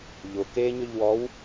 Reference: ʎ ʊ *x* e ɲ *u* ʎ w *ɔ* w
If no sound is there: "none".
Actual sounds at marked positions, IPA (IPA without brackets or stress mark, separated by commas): k, ʏ, ɔ